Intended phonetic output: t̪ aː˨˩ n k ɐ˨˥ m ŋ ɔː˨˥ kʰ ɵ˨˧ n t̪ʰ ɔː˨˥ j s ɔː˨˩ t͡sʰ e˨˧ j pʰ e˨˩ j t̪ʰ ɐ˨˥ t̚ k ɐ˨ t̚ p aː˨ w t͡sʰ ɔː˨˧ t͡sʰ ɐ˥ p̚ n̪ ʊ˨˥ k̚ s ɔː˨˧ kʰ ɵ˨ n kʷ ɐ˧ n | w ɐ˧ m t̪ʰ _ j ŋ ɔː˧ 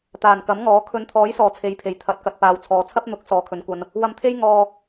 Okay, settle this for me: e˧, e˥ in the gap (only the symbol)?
e˥